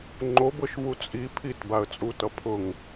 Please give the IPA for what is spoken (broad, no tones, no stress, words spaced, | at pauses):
ŋ͡ǃobɤʃvu t͡sʼi pʰitbaə̯t͡sʼutʌ pʰʊŋ